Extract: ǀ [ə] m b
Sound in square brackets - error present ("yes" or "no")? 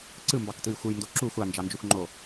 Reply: yes